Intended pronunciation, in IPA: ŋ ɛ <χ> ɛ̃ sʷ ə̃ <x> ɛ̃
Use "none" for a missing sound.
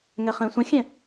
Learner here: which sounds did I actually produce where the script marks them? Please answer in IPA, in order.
χ, xʲ

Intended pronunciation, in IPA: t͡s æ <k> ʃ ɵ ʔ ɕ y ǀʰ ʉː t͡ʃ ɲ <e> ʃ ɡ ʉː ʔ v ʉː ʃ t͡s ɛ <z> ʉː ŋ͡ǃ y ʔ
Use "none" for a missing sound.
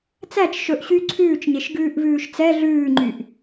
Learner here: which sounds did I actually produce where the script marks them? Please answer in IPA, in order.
t͡ʃ, e, ɮ

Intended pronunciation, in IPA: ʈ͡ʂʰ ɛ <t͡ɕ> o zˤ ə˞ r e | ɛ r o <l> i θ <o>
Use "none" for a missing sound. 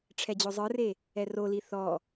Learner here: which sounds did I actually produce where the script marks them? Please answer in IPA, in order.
d͡ʑ, l, ɔ

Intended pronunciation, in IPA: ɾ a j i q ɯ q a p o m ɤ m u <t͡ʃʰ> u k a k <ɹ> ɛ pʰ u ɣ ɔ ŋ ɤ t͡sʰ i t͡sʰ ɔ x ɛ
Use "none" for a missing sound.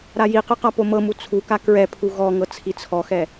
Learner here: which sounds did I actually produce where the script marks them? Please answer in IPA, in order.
t͡sʰ, ɹ

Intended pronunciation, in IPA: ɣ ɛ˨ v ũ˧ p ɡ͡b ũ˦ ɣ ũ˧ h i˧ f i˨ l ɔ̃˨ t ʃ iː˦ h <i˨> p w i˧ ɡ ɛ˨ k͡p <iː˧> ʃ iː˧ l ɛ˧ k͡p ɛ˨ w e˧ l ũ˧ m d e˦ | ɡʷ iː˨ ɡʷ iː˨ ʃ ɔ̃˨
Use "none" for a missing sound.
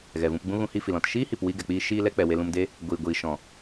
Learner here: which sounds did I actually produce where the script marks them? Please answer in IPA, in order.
i˨, iː˧

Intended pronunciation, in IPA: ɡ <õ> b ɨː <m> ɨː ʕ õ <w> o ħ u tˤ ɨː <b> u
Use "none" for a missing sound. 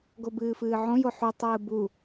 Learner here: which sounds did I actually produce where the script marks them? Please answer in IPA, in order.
o, f, j, b

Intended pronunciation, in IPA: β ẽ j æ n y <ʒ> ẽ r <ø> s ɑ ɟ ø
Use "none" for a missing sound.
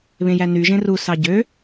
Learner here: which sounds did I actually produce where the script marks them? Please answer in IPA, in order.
ʒ, u

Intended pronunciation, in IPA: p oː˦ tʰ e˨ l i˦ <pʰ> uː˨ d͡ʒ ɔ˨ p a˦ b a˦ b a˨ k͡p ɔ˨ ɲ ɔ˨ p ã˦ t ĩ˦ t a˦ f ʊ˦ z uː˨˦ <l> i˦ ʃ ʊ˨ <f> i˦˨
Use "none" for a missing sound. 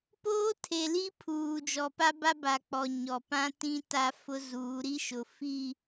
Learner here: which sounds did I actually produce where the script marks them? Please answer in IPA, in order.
pʰ, ɾ, f

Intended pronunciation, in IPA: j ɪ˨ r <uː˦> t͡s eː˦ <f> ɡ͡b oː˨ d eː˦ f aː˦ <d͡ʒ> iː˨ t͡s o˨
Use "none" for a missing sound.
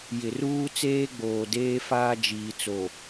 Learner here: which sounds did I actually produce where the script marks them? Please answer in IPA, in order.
uː˦, none, d͡ʒ

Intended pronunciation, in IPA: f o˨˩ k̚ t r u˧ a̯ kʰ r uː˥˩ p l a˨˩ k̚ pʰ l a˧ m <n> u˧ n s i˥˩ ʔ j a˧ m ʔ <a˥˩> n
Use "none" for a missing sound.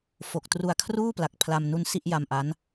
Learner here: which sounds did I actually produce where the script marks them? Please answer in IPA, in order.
n, a˦˥

